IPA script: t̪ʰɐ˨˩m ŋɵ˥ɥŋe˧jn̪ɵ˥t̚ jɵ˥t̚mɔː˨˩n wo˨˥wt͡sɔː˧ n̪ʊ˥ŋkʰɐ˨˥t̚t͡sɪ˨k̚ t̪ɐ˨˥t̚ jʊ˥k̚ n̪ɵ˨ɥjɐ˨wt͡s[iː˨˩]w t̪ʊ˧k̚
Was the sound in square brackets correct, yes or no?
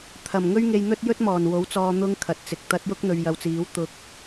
no